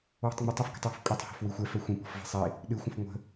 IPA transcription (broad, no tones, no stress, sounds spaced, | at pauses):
w e̤ tˤ ŋ͡m e tˤ ɛ f ɡ e̤ tˤ w e̤ f kʷʼ ɛ tˤ h ɔ̤ f w i xʷ ɛ f ɛ xʷ ĩ p ɔ̤ f v e̤ sˤ i | ɗ ɨ xʷ ə̃ f ŋʷ ə̤